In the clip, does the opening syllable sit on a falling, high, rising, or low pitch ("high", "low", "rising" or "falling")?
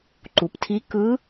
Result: low